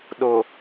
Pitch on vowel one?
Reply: low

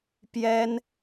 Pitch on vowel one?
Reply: high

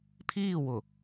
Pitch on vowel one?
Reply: falling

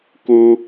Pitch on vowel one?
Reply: high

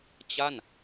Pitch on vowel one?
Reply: falling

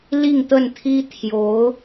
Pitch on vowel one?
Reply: falling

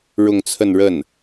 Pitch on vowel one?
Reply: falling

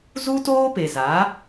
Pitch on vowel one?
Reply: high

